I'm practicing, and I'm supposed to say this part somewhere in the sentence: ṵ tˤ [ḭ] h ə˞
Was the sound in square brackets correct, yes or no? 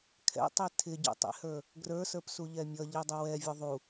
yes